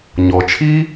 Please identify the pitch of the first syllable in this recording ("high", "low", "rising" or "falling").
low